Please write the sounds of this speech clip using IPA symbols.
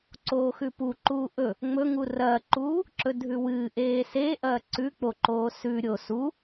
ǀ oː x ʉ p u ǃ uː ʔ ɵ | ŋ͡m ɵ ŋ u r ɐː ǃ uː | ǁ ɵ dʱ ʉ w ɨː ʔ eː s eː ʔ ɐː ǀ ʉ k͡p o ǃ oː s ʉ ɾʲ o s u

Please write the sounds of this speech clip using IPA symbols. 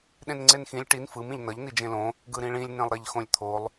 ɗ ẽ n ŋ͡ǀ e n x ĩ lʲ ʈ i n f ɯ m ĩ ʎ n ʌ ʎ n i d͡ʒ ẽ l õ | ɡ ɯ ɾ ĩ ɭ ĩ lʲ n ẽ lˠ ɾ e ʎ x õ lʲ t̪ʰ o lˠ

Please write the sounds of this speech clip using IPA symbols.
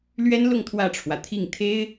l ɥ ɛ˥ n l ʊ˥˧ ŋ t̪ʰ w ä˥˩ ʈ͡ʂʰ w ä˩ t̪ʰ i˥˩ ŋ t̪ʰ e˥ ɪ̯

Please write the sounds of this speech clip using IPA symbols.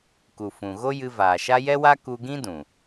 k u˨ f ũ˨ ɣ o˦ j ɨ˧ v aː˨ ʃ a˦ j ɛ˦ w a˦ k u˧ ɡ ĩ˦ d ũ˨

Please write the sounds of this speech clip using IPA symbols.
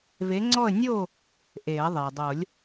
v e˨˥ ŋ͡ǀ ɔ˥˨ ə̯ nʲ o˥˨ | ʔ e˨˩˦ ə̯ ðˤ e˩ dˤ o˨˩˦ lʲ

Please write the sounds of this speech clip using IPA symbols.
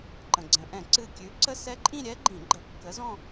ǃ ə̃˩ ɡ͡ǀ ə̃˩ ʔ ɛ̃˧˩˧ ǀ ɨ˧˩ kʲ ʉ˨˥ ǀ ə˥˧ s ɛ˦˥ ǃʼ ĩ˥˧ ɾʲ ɛ˦˥ ɡ͡ǃ ĩ˧˩˧ ɡ͡ǃ ə˧˩˧ kː ə˨˥ z ɔ̃˥˧

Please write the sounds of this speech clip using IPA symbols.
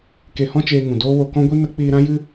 k e˧ h ɔ̃˦ t͡ʃ eː˧ ŋ ũ˨ d oː˦ w o˧ k ɔ̃˦ ɡʷ i˦ n ə˦ k͡p iː˧ ɾ ã˦ j ɨ˦

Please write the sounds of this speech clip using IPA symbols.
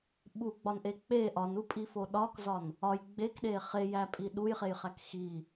ɓ u ɡ͡b ɒ n ʔ e k͡p e ʔ ɒ n u pʼ i f o ɗ ɒ k z ɒ n | ɒ j ɡ͡b e k ɗ e χ e j æ pʼ i ɗ u j χ e j χ æ k x i

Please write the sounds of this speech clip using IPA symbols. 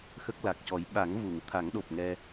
x ə˦˥ k̚ l a˨˩ k̚ c ɔ˨˩˦ j ɓ a˨˩˦ ŋ v u˨˩˨ ŋ t̪ʰ a˨˩˦ ŋ ɗ o˨˩ p̚ ŋ ɛ˧

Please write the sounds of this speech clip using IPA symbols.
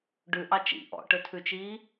ɖ ʉ ʔ ɑ t͡ʃ ḭ ʔ ɔ̰ ʈ ɵ tʰ ʉ t͡ʃ iː

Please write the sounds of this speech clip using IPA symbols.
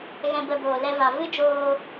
ɣ ɛ̃˧ b ə˧ b oː˨ l ɛ˧ v a˨ v ɨ˦ d͡ʒ oː˧

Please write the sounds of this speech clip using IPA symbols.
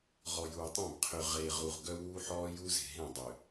ʁ ɔ˨ j uː˨ tˤ ẽ˦˨ b qʰ ø˨ ʁ eː˨ ʁ u˨ ʁ ɡ œ˦ w uː˦ ħ ɔː˦ j u˦ z e̤˨ ɦ ẽ˦˨ dˤ ø˨

